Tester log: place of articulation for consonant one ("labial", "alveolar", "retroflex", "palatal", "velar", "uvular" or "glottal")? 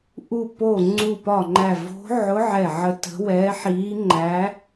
glottal